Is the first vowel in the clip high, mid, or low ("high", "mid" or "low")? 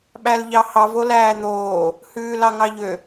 low